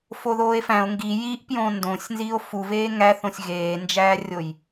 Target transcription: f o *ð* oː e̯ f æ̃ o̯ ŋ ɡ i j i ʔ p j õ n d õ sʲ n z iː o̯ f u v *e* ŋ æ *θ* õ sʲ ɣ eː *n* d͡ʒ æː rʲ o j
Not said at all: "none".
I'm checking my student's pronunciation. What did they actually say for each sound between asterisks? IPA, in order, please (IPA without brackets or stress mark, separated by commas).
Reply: ð, eː, θ, n